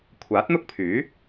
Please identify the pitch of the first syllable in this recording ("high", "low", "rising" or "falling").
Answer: rising